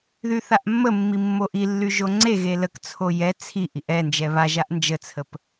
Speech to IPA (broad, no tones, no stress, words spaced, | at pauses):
ðyθaʔmːəmːi mːoʔilːy ʒoŋ͡ǀeɣe ləkt͡sʰo jɛ t͡sʰi ʔiʔɛnd͡ʒɛ βaʒaʔ nd͡ʒət͡sʰəp